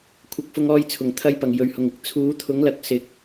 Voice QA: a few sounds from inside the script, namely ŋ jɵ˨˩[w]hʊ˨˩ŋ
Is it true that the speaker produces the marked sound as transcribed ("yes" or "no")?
no